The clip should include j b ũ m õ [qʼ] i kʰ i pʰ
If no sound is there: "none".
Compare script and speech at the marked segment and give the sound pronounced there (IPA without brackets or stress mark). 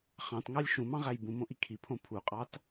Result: ʔ